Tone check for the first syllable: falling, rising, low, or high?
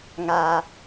low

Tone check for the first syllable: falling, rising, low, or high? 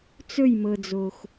falling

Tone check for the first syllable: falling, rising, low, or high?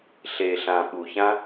low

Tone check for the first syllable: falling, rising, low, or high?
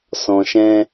low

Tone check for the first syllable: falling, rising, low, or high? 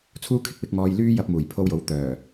high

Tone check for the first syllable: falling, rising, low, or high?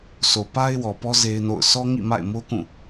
low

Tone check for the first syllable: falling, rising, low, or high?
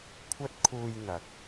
high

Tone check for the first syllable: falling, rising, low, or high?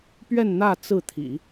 falling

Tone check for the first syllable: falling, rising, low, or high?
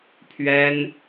high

